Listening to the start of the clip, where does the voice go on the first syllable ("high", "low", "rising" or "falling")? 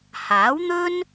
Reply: rising